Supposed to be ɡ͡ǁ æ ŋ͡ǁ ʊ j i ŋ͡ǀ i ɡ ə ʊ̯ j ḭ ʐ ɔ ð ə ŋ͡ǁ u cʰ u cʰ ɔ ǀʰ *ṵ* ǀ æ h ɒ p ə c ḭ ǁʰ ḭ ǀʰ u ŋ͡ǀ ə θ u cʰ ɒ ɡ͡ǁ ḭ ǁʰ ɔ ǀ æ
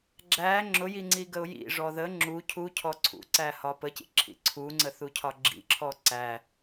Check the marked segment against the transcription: correct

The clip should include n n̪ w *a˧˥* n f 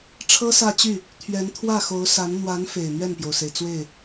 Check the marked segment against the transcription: correct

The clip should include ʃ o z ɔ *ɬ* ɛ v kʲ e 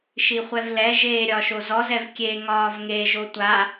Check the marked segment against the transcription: incorrect: z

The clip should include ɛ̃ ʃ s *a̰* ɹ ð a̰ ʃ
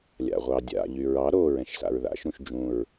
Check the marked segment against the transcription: correct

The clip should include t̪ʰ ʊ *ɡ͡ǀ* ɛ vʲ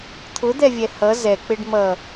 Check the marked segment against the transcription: incorrect: d̪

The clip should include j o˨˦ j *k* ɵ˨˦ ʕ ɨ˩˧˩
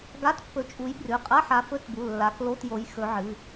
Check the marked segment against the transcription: incorrect: x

